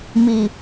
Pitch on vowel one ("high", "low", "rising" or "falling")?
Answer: low